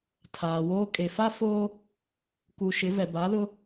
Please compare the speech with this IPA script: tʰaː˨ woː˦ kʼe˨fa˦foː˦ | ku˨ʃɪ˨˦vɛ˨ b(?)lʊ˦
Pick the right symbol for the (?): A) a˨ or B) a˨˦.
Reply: B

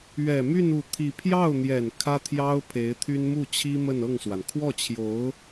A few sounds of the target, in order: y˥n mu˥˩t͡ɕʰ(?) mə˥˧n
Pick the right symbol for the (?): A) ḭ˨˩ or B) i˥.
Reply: B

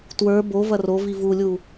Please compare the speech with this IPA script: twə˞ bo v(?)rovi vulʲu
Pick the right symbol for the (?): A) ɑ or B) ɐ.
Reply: B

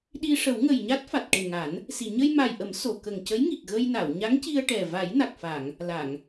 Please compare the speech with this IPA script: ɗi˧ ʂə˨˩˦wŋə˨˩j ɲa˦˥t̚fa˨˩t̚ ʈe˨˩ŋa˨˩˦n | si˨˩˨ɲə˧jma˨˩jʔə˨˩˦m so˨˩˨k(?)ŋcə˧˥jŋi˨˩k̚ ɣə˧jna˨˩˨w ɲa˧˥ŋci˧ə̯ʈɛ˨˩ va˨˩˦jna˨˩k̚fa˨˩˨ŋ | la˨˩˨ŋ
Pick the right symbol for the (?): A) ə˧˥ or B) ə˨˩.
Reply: B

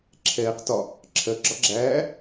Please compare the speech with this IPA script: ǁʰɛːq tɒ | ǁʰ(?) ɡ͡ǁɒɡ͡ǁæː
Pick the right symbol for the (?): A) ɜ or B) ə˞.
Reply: A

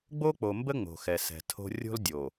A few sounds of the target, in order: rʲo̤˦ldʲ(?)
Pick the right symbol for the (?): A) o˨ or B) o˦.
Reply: A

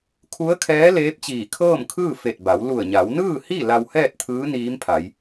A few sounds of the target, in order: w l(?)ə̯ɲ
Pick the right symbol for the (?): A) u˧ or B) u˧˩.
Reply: B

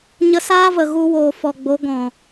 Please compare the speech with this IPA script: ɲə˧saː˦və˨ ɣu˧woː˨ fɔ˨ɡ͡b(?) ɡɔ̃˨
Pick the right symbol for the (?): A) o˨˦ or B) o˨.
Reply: A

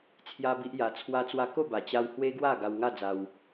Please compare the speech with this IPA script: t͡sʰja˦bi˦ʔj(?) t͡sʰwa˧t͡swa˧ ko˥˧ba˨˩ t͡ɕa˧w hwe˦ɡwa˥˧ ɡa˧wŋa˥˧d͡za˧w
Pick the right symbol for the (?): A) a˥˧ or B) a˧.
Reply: B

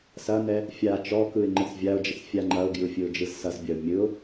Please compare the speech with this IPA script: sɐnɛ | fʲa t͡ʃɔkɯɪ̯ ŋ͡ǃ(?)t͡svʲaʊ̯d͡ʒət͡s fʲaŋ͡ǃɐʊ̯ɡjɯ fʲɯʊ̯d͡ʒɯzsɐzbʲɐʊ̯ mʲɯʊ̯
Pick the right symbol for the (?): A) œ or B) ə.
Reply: B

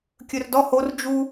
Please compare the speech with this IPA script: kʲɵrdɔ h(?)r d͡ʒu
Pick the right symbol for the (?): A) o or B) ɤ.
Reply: A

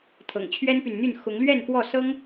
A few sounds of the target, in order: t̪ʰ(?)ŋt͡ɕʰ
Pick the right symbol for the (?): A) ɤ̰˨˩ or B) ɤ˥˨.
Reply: A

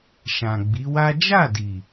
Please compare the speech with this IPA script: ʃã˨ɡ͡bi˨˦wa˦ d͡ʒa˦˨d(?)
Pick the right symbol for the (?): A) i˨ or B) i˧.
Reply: A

